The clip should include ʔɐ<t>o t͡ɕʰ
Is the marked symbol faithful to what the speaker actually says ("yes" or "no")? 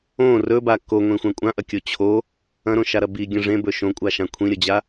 no